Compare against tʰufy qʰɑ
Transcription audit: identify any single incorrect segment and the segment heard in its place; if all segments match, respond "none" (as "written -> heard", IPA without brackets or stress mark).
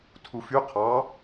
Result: none